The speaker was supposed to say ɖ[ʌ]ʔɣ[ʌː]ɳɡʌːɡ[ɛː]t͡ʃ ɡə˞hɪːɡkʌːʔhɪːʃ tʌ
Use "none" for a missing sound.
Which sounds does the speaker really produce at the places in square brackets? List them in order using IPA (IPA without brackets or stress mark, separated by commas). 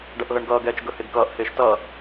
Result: ʌ, ʌ, ɛː